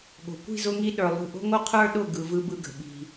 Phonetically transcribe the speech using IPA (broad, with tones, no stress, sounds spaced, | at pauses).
ɠ o̤˨ kʷ i̤˦˨ z ʊ˧ ŋ i˧ ɗ ə˞˨ lˠ ṳ˦˨ ʔ o̤˦ ŋ o˦ qʰ ə˞˦ ɗ ʊ˦˨ ɡ ɯ˨ v ɯ˧ b ɯ˧ ɡ ə̤˨ ɓ i̤˨